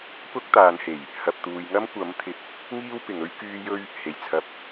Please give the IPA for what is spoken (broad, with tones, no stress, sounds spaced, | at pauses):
p ʊ˥ k̚ t̪ aː˨˧ n h e˨˩ j | h ɐ˨ p̚ t̪ uː˨ j ŋ ɐ˥ m kʷ ɐ˨˥ m t̪ʰ ɪ˨ k̚ | ŋ iː˥ w p ɪ˨ ŋ ɵ˥ ɥ k yː˥ j ɵ˥ ɥ | h e˨˩ j t͡sʰ ɐ˨ p̚